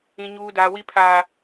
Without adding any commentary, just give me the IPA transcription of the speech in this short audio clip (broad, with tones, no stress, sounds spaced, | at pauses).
ĩ˦ ɲ uː˦ d a˦ w i˦ pʰ a˦